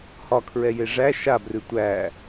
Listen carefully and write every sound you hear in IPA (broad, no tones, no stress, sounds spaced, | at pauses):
h ɒ kʰ ɹ ɛ j e ʐ æ ʃ a b r ʉ tʷ æ